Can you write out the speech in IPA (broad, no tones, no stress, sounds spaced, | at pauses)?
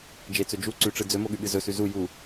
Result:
d͡ʒ e t͡s ɵ d͡ʒ u ǀ ʉ ʈ͡ʂ ɨ d͡z ɵ m o ɠ ʉ ɠ ɨ z ɵ s ʉ z u j u